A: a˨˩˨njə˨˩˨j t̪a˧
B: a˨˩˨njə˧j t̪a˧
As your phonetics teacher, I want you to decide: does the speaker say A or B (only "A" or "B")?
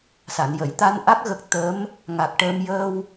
A